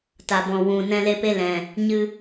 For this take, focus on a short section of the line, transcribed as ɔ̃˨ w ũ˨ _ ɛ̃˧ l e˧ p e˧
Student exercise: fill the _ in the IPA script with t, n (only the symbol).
n